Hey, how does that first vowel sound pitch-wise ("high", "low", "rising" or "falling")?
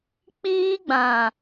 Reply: high